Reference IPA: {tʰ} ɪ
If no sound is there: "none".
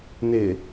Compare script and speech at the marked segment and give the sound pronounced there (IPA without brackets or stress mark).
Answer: n̪